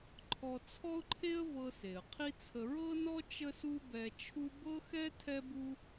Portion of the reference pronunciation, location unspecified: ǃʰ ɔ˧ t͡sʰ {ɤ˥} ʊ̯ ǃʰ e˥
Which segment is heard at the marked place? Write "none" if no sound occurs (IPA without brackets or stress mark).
ɔ˥